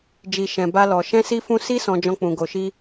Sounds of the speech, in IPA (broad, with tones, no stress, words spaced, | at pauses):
d͡ʒi˨ ʃɛ̃˨ba˧lɔ˨ ʃɛ̃˧si˧fũ˧ si˦ sɔ̃˧d͡ʒɔ̃˧k͡pũ˨ ɡo˨ʃi˧